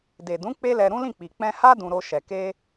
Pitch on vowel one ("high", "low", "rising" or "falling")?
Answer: low